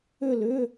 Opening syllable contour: falling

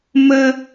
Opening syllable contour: high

